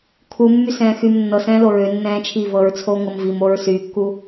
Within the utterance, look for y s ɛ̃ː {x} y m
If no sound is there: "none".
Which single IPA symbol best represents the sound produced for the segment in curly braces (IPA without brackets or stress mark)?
x